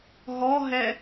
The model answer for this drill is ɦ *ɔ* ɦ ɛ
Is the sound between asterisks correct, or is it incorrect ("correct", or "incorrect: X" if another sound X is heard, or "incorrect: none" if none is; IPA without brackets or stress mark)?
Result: correct